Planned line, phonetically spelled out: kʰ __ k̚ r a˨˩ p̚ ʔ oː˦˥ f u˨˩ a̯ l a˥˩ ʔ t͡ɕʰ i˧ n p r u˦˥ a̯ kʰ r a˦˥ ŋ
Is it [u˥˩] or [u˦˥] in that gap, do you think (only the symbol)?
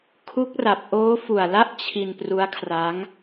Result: u˦˥